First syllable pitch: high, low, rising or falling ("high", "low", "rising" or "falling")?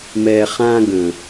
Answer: low